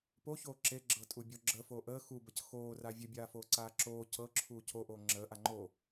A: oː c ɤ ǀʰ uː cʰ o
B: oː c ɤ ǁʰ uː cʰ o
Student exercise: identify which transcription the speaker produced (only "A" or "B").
B